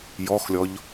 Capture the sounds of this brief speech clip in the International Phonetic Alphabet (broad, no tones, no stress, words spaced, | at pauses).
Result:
jɔxlʲɔʎ